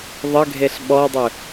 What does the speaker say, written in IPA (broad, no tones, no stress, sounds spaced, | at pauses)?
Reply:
ðˤ ə ɡʱ e ɬ ɓ ɔ dˤ ɵ